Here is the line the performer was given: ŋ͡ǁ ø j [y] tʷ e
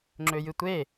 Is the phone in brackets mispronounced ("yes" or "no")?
yes